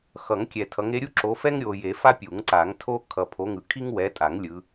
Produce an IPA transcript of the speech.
xʌ˨˩˦ŋ kʲɛ˨tʰʌ˨˦ŋ e˨˦ɾʲu˥ ǁo˨˦fɛ˥ŋ ɾʲo˨je˨˩˦fa˥ pʲu˨˩˦ŋǀa˨˩˦ŋtʰo˥ kʰʌ˨pʰo˨˦ŋɯ˨ kʰi˥ŋwɛ˨˦tʼa˨˩˦ŋ lʲɯ˨˦

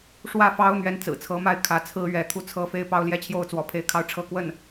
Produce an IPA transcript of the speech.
ʂwä˥˩fɑ˥ʊ̯ n̪ɥɛ˧˥nt͡sɹ̩˨˩t͡sʰɤ˧˥ma˥˩ɪ̯ kʰä˧˥t͡sʰɹ̩˥ ɥɛ˧˥t̪ʰu˥˩ t͡sʰɤ˥ fe˥ɪ̯pɑ˥ʊ̯ljɛ˥t͡ɕʰjo˥˩ʊ̯ t͡swɔ˧˥pʰe˥˧ɪ̯kʰɑ˥˧ʊ̯ ʈ͡ʂʰɤ˥˧kwə˥˩n

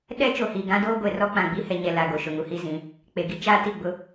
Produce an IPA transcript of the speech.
ɗɛ˦ t͡ʃo˨hiː˨ɡã˦doː˦ ɡʷe˨rɔ˦k͡pã˨ɡ͡bi˦ hɛ˨ɲɛ˨ la˨ɡo˨ ʃʊ˨ŋu˨hi˦zĩ˨˦ | k͡pe˨ɡi˦ t͡ʃaː˦ti˦˨ ɡ͡bʊ˦

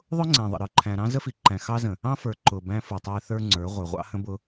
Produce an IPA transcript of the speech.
ðˤʊ˦ŋ͡ǀæ̃˨ ðˤə̰˨ɾə˞˨ǃʰæ̃˨ɾɑ̃˦ zə˦fi˨ǃæ̃˨ xɑ˦zə̃˨ | ɑ̃˦fə˞˨ ǃʊ˨ bæ̃˦fu˨tˤæ˦ θə˞˦ŋ͡ǀə˞˨˦ ʁʷə˞˨ʁʷɑ̰˦hə̃˦bʊ˦

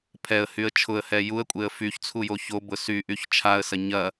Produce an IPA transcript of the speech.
pʰɛə̯hyə̯ t͡ʃʰʊə̯hɛ juə̯kʷʼeə̯ fyçt͡sʰujo çobʊ syʔyç t͡ʃʰaə̯sɐ ɲɐ

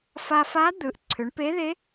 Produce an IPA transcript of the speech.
fa˧fa˧˥ d̪ɯ˩˧ʔ ǀʰʏ˩˧ɳpe˧˥ ðe˧˥

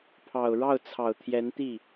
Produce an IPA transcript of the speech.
pʰɑ˨˩ʊ̯ɻɑ˥˩ʊ̯t͡sʰɑ˨˩ʊ̯ t̪ʰjɛ˧˥nt̪i˥˩

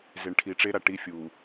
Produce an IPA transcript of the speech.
ze˨ɳʈʰi˨ʈ͡ʂe˦ɾa˨ ʈi˦fʲu˨

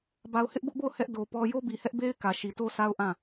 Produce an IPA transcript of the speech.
ba˨ʊ̯hɪ˦ʔbʊ˦ʔbo˦˨ʊ̯ hɛ˦ʔ do˨ pɔ˦ jo˦bi˨hɛ˦ʔbe˦ɪ̯ kä˨ʃi˨to˦sa˦ʊ̯ ʔã˦˨

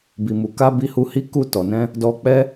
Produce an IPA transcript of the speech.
bi˨mu˨ka˧ bi˧hu˧hi˦ ku˧tɔ˨nɛ̃˧ | dɔ˧k͡pɛ˦

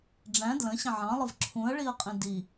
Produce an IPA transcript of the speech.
ɖ͡ʐæ̃ dlə̃ɕə̃ ʕɑ̃lˠəv ǁʰũɐ̯ɭiɐ̯qʼĩ di

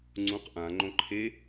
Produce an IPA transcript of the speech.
ŋ͡ǀũq ʔã ŋ͡ǃõǃʰe

